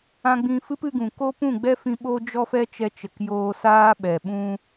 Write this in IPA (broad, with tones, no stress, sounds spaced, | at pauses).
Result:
ã˧ ɡ͡b ĩ˧ f ɨ˦ p ɨ˧ ɡ ũ˨ k o˦ p ũ˦˨ ɡ͡b ɛ˦ f ĩ˧ ɓ o˦ d͡ʒ ɔ˦ f ɛ˦ t͡ʃ ɛ˧ t͡ʃ ə˨ k j oː˧ s aː˦ ɓ ɛ˨ ɓ ũ˦